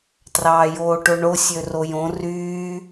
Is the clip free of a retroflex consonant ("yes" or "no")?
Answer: no